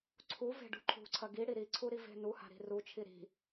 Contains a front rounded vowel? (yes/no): no